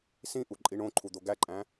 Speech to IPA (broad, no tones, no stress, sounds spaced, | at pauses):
s ĩ ʔ u ǃʼ i ɳ õ ǃʰ u d̪ o ɡ æ ǃʼ æ̃